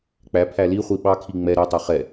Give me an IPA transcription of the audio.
k͡p æ pʰ æ l i χʷ i ɓ ɑ kʰ i ŋ͡m ɛ ɾ ø tˤ ɛ χ ɛ

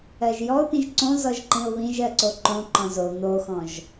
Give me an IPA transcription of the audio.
ɜ ʒ j ɔ ʊ̯ t̪ ĩ ʒ ǀ õ z ɔ ʒ ǃ ĩ ʊ̯ β ĩ ʒ ɜ ǀ o ǃ õ ǃ ɔ̃ z o n̪ o x ɔ̃ ʒ

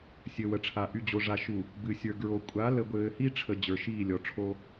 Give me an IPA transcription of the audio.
sʲ ɘ˨ w ə˨ ʈ͡ʂʰ a˨ ʔ y˨ d͡ʑ o˨ ʐ a˨ ʃ u˨ | b ɨ˨ sʲ ə˞˨ ɡ ɹ o˨ kʷʼ a˨˦ l ə˨ ɡʷ ɘː˨ h i˦ ʈ͡ʂʰ ə˨ d͡ʑ ə˞˨ ʃ iː˦˨ lʲ ɔ˨ ʈ͡ʂʰ o˦

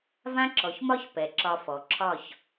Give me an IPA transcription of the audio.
v ã˦ ǁ ɔ˨ ç m ɒ˦ ç p ɛ˨ ǁ ɒ˧ f ɔ˨ ǁʰ ɒ˦˨ ç

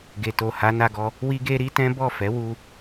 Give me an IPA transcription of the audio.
ɡ e˨ t o˨ h a˨˦ n a˧ ɡ ɔ˧ | w i˦ ɡ e˦ ɾ i˦ t ɛ̃˦ b ɔ˦˨ f ɛ˨˦ w u˧

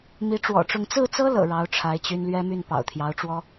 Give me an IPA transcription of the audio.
m i˧˥ ʈ͡ʂ w ɔ̰˨˩ ʈ͡ʂ ʊ˥˧ ŋ t͡s ɹ̩˥˩ t͡s ɤ˥ l ɤ̰˨˩ ɻ ɑ˧˥ ʊ̯ ʈ͡ʂʰ a˧˥ ɪ̯ t͡ɕ y˥ n l ɥ ɛ˥ m y˥˩ n p ɑ̰˨˩ ʊ̯ t̪ʰ j ɑ˧˥ ʊ̯ ʈ͡ʂ w ɔ˥

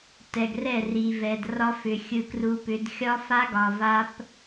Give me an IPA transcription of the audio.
t ɛ˨ ɡ r ɛ˦˨ r i˨ v ɛ˨ d r ɒ˦ f ʏ˨ xʲ ɯ˨ k r u˨ p ʏ˨˦ d xʲ ɒ˦ f a˦ ɡ ɒ˨ v a˦ p

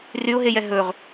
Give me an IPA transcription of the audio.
r y ʊ̯ ɦ e j ɛ ɦ ɵ ʁ

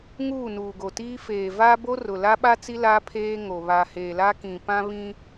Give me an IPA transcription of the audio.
ŋ uː˦˨ n uː˨ ɡ o˨ t iː˦ f eː˨ v a˦ b o˦ r ʊ˨ l a˦ ɓ a˦ t͡s i˦ l aː˦ pʰ eː˦ ŋ o˨ β a˨ h eː˨ l a˦ k ĩ˨ p ã˦ β ĩ˦

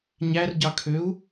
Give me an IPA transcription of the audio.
ɲ æ r ɟ ɑ kʰ ø u̯

